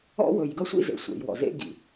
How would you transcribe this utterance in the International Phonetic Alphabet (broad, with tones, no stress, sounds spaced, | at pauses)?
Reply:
ɔ̰˦ w ɵ˨ j ɡ ʌ˦ sʷ ḭ˦ z ḛ˨ sʷ ḛ˨ j w ɔ̰˨ z ḛ˦ ɡ ḭ˨